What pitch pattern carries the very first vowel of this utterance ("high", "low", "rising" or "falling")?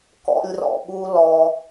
high